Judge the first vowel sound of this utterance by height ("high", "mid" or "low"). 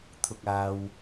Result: high